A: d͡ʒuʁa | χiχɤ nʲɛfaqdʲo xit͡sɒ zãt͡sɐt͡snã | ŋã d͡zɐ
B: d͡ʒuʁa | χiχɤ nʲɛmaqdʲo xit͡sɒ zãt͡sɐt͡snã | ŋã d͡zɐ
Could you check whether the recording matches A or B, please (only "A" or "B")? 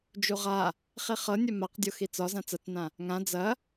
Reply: B